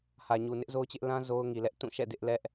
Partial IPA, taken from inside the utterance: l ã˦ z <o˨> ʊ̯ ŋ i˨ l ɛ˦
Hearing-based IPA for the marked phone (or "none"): o˦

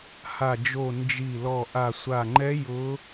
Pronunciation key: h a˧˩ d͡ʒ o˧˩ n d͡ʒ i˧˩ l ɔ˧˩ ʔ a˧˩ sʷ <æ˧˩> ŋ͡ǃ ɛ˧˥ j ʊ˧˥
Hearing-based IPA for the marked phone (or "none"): a˧˩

